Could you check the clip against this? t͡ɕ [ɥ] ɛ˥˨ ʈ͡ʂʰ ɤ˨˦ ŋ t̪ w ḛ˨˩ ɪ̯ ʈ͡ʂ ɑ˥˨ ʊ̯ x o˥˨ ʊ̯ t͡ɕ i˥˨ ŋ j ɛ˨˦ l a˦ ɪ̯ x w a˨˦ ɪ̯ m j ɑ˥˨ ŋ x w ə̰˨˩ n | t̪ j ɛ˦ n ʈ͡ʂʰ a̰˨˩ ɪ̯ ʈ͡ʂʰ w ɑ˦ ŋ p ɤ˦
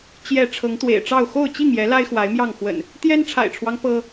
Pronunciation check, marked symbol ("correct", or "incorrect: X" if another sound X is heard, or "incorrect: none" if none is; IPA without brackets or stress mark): incorrect: j